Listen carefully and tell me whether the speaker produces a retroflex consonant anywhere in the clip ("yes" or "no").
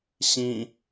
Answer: no